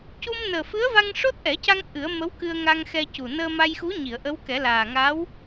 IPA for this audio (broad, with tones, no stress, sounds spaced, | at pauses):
c u˧ m n əː˨˩ f ɨ˧˥ ə̯ v a˧ ŋ ʂ o˦˥ t̚ ʔ ɛ˨˩˦ c a˧ ŋ ʔ ɨ˨˩˦ ə̯ m ə˧˥ w k ɨ˧ ə̯ ŋ a˧ ŋ x ɛ˧ c u˨˩ n əː˧ m a˧ j x u˧˥ ɲ i˨˩˨ ə̯ ʔ ə˧˥ w k ɛ˨˩˦ l aː˨˩ ŋ aː˧˥ w